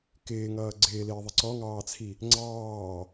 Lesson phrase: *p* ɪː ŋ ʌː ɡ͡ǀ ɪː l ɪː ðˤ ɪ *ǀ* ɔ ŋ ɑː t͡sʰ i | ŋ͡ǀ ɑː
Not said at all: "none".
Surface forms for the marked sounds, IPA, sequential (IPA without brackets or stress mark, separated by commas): k, ǀ